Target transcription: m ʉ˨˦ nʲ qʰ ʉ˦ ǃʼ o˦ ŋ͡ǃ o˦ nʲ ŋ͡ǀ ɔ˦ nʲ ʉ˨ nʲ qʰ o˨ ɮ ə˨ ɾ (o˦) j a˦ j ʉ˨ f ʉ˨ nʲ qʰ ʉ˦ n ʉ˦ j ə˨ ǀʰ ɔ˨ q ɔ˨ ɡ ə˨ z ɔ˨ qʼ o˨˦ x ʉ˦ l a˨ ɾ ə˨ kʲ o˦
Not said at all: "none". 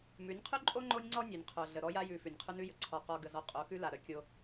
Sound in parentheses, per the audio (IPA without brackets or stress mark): ɔ˦